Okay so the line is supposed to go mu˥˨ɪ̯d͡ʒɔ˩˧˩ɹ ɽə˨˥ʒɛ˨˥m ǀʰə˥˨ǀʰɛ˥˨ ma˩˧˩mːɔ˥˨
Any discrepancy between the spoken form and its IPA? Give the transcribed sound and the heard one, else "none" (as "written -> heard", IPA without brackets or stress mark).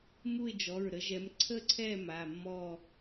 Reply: ɽ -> ɾ